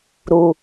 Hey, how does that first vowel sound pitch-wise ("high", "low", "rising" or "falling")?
low